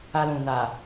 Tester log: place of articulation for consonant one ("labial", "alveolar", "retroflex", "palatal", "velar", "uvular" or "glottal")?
alveolar